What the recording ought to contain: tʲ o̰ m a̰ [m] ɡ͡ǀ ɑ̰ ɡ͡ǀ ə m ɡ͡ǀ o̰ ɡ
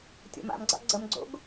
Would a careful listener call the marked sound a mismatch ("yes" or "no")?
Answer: no